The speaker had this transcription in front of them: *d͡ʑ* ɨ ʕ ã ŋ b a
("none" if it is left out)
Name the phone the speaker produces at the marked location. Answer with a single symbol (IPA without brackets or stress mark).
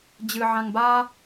d͡ʑ